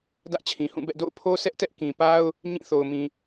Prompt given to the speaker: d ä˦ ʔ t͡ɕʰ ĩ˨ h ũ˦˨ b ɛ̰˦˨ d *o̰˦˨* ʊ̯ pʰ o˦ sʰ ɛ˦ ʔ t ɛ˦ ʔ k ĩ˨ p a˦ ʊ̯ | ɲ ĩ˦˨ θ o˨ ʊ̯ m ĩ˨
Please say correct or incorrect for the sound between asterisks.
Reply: correct